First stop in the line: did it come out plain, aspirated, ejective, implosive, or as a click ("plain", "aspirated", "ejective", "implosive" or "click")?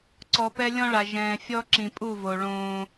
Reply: click